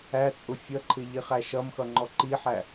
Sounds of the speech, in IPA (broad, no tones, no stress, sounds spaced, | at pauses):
æ t͡sʼ ʊ fʲ ʌ ǃʰ ɪ ʎ i χ æ ʃ ʌ m x ʌ ŋ͡ǃ ɔ ǃ i ħ æ